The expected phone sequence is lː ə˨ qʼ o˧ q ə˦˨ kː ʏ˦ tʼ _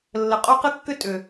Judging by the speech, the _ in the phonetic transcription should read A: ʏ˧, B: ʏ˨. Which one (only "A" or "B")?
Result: B